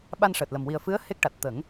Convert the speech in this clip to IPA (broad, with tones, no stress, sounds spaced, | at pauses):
ɓ a˧ n ʂ əː˨˩ t̚ l ə˨˩ m w i˨˩ ə̯ f ɨ˧˥ ə̯ h e˦˥ k̚ ʈ a˨˩ t̚ t̪ ə˨˩˦ ŋ